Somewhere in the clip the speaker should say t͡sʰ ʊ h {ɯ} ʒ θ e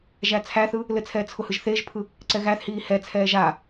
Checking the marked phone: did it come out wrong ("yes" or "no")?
no